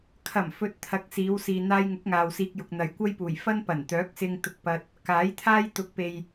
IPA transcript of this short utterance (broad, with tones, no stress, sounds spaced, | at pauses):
kʰ ɐ˨˩ m f ɵ˨ t̚ t̪ʰ ɐ˧ k̚ s iː˨˧ w s iː˨ n̪ aː˧ j ŋ ʊ˨˥ k̚ ŋ aː˨ w s iː˧ k̚ j ʊ˨ k̚ n̪ ɐ˨ j kʷ ɐ˥ j p uː˨˩ j f ɐ˥ n p ɐ˨˩ n t̪ œː˨˥ k̚ s ɪ˧ ŋ t̪ ʊ˧ k̚ p ɐ˧ t̚ | k aː˨˥ j t̪ʰ aː˥ j t̪ ʊ˨˥ k̚ p e˨ j